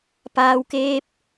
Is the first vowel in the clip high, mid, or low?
low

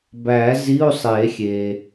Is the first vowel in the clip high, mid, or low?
low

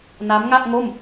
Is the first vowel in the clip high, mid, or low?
low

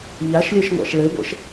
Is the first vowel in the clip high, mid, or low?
low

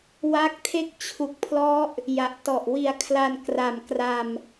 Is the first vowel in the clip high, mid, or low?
low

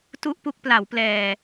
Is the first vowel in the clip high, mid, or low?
high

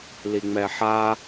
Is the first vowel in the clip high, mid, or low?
high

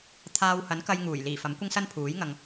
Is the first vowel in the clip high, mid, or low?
low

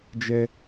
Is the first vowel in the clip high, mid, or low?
mid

